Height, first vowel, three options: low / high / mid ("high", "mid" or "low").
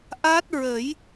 low